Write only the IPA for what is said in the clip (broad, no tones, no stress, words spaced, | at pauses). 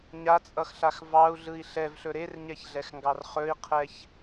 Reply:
ɲat͡sʼʌxɬax vɑu̯ɮɯi̯ ɬɛvɬɵ ɾerɲɛçɮɛxŋɡɑr χɵi̯qʰɛç